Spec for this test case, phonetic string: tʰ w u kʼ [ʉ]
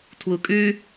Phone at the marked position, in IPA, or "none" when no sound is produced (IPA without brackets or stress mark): ʉ